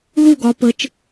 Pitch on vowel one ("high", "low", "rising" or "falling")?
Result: falling